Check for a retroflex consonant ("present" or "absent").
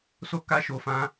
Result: absent